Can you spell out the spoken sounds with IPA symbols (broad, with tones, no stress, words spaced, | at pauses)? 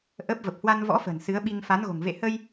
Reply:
ʔə˦˥p̚ və˨˩p̚hwa˧nvɔ̰˧˥fə̤˨˩n sɨ˨˦ə̯ɓi˧ŋ fa˨˦nɣo̤˨˩ŋ vḛ˧˨hə˧j